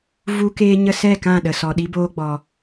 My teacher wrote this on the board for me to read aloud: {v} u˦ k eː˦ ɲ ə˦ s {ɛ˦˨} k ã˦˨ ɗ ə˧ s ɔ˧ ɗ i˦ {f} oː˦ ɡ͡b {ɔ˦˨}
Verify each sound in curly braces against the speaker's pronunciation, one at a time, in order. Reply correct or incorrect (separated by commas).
correct, correct, incorrect, incorrect